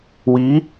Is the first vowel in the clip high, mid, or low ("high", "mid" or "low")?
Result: high